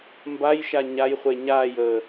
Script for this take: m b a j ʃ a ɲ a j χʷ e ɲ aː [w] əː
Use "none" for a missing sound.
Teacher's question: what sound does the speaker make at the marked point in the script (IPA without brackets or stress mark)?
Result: j